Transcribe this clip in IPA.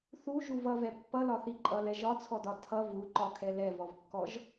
θ u ʒ u v ʌ v ɛ pː ʌ l ɒ θ i ǃʼ ʌ l ɛ ʒ ɒ t͡sʰ ɔ d ɒ tʰ ʌ v u ǃ ɒ kʰ ɛ l ɛ v ɔ v kː ɔ ʒ

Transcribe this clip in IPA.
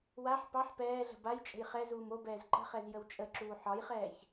w a ħ p ɑ ħ p ɛː ɮ ə̤ b a j t͡ʃʼ ə̤ j χ ɛ z uː m o b ɛː z ǃ ə̤ χ ɛ z j ə w t͡ʃʼ ə ǁ uː ħ ɒ j χ ɛː ç

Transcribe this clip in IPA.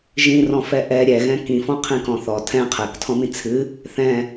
ʒ ĩ r ɔ̃ f ɛ ʔ ɛ ɾʲ ɛ ɣ ɛ̃ k ĩ f ɔ̃ qʰ ĩ k ɔ̃ θ ɔ tʰ ɛ̃ qʰ ɛ k tʰ ɔ̃ m ĩ t͡sʰ ɨ | θ ɛ̃

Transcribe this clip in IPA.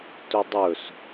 t ɵ dˤ ɵ s

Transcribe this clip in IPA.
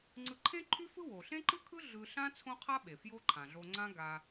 ŋ͡ǀ ɯ˧ ǃʰ ẽ˥ ǃʰ y˥ f ɯ˥ w o˩ ɬ ẽ˥ ǃ ɯ˥ kʰ ɯ˥ ɮ ɯ˧ ɬ ã˥ t͡sʰ õ˥ qʰ a˥ ɓ e˩ f j o˥ ǃʰ ã˩ ɮ o˧ ŋ͡ǀ ã˥ ɡ a˧

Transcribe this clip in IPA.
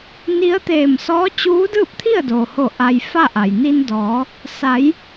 n i˧˥ ə̯ t̪ eː˧˩ m s ɔː˧˥ t͡ɕ uː˧˥ d ɯː˥˨ p̚ t̪ʰ i˥˨ ə̯ d oː˩ h o˧˩ ʔ a˧ j f a˥˨ ʔ a˩ j n i˧ n d ɔː˩˧ | s a˩˧ j

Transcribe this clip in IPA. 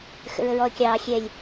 x ə̰ ɹ ə ɹ ɔ ə̯ kʲ ɑː xʲ ɛ lʲ

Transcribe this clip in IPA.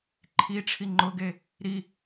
ǃʰ i ʈ͡ʂʰ i ŋ͡ǃ ʊ ɡ e | ɾ i

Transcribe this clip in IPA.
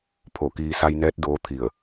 pʰ o˧˩ k iː˧ s a˧ j n ɛː˧˥ t̚ d oː˧˥ t̪ʰ i˧˩ ə̯

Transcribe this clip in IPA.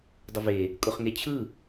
dˤ ʊ v e | kʼ ʊ χ ŋ e t͡ɕʰ ɯ

